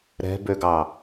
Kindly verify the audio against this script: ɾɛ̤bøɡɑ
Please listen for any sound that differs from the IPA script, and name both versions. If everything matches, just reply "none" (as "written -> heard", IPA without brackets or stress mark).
none